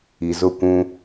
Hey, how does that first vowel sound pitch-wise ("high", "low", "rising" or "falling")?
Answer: low